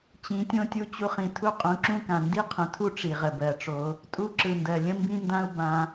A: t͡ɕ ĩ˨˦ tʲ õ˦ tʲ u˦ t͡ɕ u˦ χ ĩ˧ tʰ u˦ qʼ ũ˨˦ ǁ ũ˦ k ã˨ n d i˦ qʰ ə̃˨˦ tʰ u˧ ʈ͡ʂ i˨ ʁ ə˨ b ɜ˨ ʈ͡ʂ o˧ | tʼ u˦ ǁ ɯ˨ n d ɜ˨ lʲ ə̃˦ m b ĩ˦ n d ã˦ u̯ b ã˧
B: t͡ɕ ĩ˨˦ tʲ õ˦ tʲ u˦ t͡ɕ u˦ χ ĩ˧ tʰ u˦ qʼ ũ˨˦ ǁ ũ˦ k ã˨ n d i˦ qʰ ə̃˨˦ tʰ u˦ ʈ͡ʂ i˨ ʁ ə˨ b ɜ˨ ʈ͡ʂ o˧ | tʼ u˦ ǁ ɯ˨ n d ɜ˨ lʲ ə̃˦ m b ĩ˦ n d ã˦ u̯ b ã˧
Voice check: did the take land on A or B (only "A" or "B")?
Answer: B